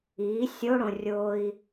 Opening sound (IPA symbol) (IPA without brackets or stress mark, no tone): iː